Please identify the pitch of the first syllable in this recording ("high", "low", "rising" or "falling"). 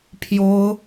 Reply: high